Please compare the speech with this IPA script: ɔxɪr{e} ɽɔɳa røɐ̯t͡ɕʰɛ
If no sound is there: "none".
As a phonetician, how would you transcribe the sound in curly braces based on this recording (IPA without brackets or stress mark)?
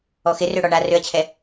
ø